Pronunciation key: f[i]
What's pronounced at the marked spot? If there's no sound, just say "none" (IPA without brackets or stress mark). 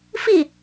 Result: i